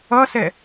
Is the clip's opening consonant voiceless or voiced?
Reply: voiceless